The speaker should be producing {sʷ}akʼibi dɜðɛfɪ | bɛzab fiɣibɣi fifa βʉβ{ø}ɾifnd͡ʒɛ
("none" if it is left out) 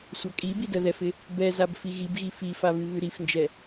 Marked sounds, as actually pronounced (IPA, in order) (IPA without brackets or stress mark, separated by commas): sʷ, ʉ